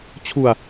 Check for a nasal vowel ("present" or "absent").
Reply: absent